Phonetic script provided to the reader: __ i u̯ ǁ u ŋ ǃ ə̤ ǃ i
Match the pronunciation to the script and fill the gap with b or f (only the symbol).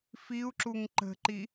f